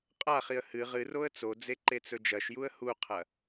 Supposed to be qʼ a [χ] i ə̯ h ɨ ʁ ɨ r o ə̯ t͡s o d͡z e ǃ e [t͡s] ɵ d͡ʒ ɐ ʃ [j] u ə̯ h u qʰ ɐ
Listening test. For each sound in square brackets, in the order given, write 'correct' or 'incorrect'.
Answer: correct, correct, correct

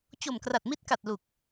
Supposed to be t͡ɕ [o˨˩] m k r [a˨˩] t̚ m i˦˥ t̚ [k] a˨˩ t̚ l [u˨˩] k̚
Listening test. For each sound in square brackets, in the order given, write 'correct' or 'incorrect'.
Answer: correct, correct, correct, correct

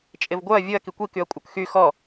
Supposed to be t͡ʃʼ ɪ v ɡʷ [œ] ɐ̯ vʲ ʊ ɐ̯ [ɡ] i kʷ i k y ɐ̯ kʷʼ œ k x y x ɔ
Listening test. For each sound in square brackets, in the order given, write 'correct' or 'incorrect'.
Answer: correct, incorrect: k

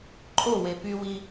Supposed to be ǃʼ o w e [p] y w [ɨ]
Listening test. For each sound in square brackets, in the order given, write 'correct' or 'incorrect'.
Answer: correct, incorrect: i

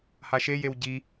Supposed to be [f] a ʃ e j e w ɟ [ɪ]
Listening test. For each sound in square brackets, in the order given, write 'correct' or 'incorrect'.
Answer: incorrect: h, incorrect: i

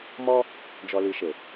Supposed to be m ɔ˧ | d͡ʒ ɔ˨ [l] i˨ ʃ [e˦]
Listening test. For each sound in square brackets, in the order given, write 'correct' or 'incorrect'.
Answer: correct, incorrect: e˨

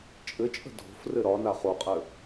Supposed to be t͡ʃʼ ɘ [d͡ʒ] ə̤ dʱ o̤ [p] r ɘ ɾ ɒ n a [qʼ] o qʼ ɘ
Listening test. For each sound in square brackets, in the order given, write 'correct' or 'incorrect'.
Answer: incorrect: t͡ʃʼ, incorrect: f, incorrect: χ

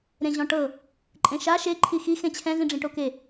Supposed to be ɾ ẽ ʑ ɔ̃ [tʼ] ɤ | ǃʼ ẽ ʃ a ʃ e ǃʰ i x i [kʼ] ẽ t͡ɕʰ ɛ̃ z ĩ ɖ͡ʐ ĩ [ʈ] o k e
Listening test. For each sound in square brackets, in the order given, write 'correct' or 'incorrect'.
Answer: incorrect: ʈ, incorrect: x, correct

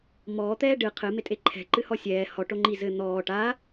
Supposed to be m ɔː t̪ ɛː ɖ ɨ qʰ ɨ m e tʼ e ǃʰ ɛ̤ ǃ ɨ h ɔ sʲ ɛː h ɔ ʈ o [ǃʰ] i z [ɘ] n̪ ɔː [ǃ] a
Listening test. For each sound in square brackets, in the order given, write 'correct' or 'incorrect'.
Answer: incorrect: ŋ͡ǃ, correct, incorrect: ʈ

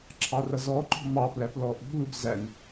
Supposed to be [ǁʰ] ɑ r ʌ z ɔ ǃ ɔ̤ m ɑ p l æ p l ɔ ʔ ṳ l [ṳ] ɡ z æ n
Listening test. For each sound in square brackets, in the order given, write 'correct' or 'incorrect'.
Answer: correct, incorrect: u

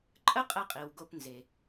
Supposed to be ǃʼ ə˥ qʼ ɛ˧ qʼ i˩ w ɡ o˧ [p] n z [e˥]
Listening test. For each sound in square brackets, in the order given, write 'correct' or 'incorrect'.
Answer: correct, incorrect: e˩

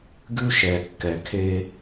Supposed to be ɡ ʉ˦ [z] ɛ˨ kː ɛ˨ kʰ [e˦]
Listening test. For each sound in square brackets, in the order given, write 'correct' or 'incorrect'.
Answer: incorrect: ʃ, correct

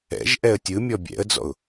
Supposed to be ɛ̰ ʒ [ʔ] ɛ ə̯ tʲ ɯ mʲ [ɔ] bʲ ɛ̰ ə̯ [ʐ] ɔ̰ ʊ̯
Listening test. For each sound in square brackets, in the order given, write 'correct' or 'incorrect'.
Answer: correct, correct, incorrect: d͡z

